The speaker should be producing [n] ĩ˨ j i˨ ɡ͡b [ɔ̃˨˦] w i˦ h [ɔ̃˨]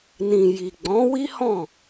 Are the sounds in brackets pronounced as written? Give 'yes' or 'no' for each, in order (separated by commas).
yes, yes, no